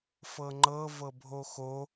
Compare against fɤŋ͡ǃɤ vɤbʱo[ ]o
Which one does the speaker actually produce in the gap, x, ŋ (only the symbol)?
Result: x